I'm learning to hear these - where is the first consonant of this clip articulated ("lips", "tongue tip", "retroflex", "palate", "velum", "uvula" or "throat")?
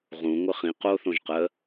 uvula